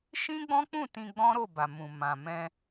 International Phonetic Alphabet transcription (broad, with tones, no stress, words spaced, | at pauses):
ʃĩ˦ɡ͡bɔ̃˦k͡pũ˦˨ tĩ˧ɡ͡bɔ̃˦ɾo˦˨ba˨ mũ˨mã˨ mɛ̃˧